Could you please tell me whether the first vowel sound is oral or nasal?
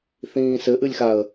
nasal